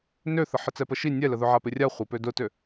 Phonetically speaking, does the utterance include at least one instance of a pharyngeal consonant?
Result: yes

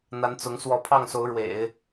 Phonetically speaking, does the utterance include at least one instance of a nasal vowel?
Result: no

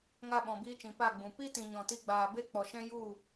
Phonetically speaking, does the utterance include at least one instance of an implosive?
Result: yes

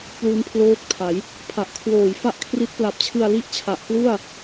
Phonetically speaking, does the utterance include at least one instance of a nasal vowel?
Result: no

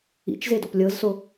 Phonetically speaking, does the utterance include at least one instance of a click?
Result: no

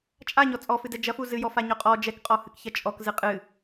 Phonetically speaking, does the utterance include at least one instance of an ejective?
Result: yes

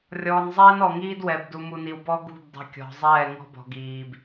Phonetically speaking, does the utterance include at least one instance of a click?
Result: no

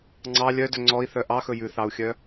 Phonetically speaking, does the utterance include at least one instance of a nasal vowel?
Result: no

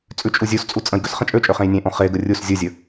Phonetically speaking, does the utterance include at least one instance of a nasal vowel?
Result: yes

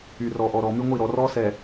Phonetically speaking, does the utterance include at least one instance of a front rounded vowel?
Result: yes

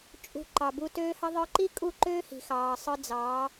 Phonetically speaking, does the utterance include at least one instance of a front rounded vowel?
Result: yes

